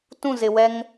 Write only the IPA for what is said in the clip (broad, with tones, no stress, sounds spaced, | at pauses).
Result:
t ũ˦˨ z ɪ˨ w ɛ˦ ŋ